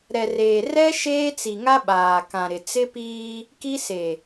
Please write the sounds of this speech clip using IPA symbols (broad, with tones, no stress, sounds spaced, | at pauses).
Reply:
ɾ ɛ˨ r eː˨ r ɛ˦ ʃ eː˦ t͡s i˨ ŋ a˦ ɓ aː˨ k ã˨ ɾ ɪ˨ t͡s ɪ˦ p iː˦ | k i˦ s e˨